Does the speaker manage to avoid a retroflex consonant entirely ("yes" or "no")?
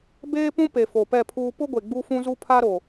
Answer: yes